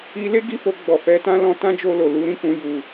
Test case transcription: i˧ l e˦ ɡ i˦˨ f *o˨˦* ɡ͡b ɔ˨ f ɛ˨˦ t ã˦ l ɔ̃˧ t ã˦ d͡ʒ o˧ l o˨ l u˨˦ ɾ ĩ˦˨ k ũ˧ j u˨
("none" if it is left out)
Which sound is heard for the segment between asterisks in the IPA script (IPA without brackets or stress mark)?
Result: o˧